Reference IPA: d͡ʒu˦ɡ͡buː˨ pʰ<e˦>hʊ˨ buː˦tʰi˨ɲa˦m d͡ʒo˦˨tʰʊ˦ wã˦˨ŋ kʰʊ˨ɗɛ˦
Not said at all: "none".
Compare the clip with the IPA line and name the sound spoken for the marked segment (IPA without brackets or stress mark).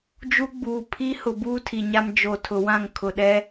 i˦